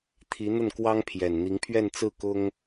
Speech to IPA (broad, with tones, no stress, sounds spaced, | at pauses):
t̪ʰ i˧˥ n̪ ə˥˩ n k w ɑ˥ ŋ pʰ j ɛ˨˩ n n̪ i˧˥ ŋ pʰ ɥ ɛ˥˧ n t͡s ɹ̩˥˩ k ʊ˥ ŋ